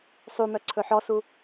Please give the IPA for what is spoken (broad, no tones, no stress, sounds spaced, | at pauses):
sˤ u m œ ǀʰ ɵ ħ ɔ s u